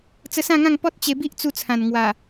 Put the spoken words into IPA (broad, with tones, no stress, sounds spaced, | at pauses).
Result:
t͡s ə˧ s ã˥˧ ŋ ã˥˧ ŋ p ɔ˦ t̚ t͡ɕ e˧ b i˦ ʔ t͡s u˧ t͡sʰ ã˨˩ n ŋ w a˨˩